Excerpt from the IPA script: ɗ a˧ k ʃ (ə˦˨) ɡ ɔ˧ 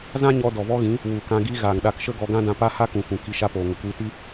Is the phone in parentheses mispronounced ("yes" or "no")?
yes